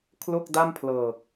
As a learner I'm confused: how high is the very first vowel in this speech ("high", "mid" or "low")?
mid